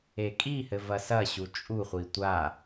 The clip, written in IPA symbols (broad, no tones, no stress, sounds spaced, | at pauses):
e kʼ i h ɘ v ɐ s ɐ ɕ u t͡ʃʼ u χʷ i tʷ a